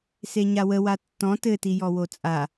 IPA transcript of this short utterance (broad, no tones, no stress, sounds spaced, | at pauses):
s e ɲ a w ə w a tː ɔ̃ t ɘ t i j ɔ w o t͡sʼ a